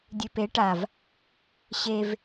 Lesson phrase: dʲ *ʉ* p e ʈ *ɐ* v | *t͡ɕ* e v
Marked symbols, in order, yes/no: yes, no, no

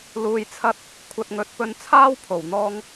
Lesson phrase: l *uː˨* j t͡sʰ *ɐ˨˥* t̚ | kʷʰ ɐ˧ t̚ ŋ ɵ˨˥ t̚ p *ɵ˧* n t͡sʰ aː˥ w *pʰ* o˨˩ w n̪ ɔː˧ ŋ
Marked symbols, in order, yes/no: yes, no, yes, yes

